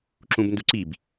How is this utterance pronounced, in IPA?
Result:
ǁũbnduǀib

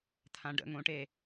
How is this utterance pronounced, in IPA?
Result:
t̪ʰãɖə̰ŋõʈe

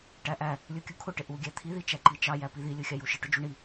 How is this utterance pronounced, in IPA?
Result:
ʈæʔæ | lʲukʲukʰʊ ʈɪʔu ɡʲæt̪ʰi ðit͡ʃæǃit͡ʃɑ jæpiði lʲuxʲɑjuʃɪ ʈʊd͡ʒuɳi

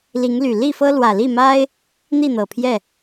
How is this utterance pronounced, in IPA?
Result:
li˨˦ŋly˨˩ li˥˨fɤ˦lwä˨˩ li˥˨ma˦ɪ̯ | n̪i˥˨n̪ɤ˨˩pʰjɛ˥˨

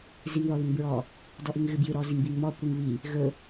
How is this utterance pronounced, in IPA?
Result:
ziŋðɔðʏŋbɹɔ | dɔʔɨŋɣɨbjɨ ɾɔziŋbiŋmɔ kʷɨŋβi | ɣɵ

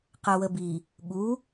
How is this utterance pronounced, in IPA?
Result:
qɜwəbi | ɠu

